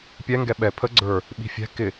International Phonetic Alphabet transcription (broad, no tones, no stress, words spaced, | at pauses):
pʲɛŋɡɛ ɓɛ pʰə ɡ͡ǀə˞ | ɓi̤fʲɛ̤ kɪ